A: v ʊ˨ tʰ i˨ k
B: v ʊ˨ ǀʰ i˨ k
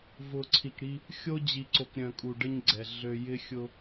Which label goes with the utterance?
B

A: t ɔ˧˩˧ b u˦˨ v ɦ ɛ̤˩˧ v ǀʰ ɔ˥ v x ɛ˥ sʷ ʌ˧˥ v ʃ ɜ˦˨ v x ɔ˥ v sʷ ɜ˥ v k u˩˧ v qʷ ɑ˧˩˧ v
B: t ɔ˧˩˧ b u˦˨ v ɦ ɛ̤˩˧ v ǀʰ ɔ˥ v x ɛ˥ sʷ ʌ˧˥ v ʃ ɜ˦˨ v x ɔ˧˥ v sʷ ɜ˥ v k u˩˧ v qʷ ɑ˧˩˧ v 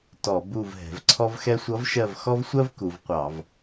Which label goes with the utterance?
A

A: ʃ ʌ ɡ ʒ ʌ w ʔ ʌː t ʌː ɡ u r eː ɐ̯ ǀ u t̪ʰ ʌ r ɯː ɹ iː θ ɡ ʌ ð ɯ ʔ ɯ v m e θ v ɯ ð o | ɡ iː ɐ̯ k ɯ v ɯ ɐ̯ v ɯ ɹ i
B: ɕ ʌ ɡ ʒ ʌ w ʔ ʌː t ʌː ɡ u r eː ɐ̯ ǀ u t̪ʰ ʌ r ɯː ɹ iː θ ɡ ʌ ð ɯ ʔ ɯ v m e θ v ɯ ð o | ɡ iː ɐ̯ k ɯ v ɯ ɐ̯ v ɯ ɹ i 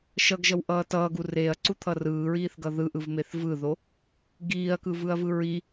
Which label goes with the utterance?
A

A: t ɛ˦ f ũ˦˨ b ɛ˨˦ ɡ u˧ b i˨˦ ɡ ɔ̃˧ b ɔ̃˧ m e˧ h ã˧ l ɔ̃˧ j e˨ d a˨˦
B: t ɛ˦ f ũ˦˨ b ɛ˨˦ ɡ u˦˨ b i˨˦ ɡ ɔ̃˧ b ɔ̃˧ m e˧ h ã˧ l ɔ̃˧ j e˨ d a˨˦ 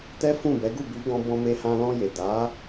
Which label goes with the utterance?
B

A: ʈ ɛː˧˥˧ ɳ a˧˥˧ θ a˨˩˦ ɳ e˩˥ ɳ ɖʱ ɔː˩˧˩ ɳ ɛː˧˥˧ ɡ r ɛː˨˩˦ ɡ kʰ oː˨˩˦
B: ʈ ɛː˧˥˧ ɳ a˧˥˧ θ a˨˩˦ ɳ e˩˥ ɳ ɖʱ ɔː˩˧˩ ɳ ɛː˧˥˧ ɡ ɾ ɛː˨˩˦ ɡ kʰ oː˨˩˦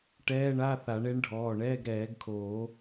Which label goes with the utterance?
B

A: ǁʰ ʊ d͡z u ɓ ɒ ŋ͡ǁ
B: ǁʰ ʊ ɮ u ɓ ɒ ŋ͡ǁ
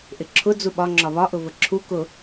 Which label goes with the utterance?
A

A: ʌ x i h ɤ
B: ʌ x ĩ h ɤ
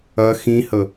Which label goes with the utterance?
B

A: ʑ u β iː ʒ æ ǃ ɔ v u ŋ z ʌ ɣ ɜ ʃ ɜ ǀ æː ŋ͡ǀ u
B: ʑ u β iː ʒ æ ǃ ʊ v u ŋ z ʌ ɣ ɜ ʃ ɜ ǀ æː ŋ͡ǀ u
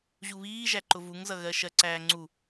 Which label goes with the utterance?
B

